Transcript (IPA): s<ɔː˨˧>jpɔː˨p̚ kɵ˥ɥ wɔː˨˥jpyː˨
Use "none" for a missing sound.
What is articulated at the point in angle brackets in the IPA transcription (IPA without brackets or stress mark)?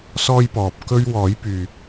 ɔː˥